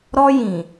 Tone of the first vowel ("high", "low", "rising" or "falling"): high